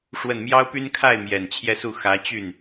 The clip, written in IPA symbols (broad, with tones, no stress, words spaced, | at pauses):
ʂwə˥˩n mjɑ˥ʊ̯ py˥nkʰa˥˩ɪ̯ mjɛ˨˩nt͡ɕʰjɛ˥˧su˥˩ xä˧˥ t͡ɕy˥˩n